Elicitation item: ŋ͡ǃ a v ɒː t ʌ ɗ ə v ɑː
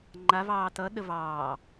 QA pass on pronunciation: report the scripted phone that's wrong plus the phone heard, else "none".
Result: ɒː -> ɑː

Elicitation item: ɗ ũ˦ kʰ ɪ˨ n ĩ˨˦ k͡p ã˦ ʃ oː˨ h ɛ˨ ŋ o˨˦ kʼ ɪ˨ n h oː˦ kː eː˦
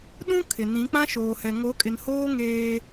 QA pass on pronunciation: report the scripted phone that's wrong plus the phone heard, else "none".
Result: kː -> ŋ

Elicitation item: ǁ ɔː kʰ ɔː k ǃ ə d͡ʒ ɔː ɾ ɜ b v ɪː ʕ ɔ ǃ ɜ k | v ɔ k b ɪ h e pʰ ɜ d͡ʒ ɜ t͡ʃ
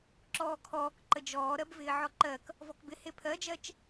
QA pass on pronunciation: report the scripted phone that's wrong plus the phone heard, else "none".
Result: none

